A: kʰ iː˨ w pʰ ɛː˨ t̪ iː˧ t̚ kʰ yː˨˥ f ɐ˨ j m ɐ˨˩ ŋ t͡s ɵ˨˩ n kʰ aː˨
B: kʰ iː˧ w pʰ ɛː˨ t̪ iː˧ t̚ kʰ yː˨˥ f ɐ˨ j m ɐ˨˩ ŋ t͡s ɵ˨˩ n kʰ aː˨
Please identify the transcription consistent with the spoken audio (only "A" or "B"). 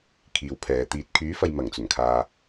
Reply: A